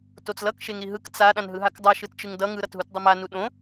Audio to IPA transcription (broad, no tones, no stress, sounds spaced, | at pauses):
t o t͡s l ʌ k ʃ e ŋ ɾ i ɦ ɯ k t͡s a ɗ ã n ɦ ɯ ɦ a k dˤ a ʃ ɯ t t͡ʃ ɯ ŋ d ʌ ŋ ɯ ɾ ʌ t ɦ u t dˤ ʌ m a n u ɗ õ